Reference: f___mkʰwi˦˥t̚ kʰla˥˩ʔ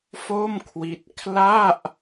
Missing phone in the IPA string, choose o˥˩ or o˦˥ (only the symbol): o˥˩